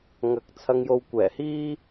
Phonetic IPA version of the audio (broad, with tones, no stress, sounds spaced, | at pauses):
ŋ ɐ˨ k̚ t͡sʰ ɐ˧ ŋ j o˧ w kʷ ɛː˨˩ h iː˥